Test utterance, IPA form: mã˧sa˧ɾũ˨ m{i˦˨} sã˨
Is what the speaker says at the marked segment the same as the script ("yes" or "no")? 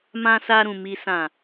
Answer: no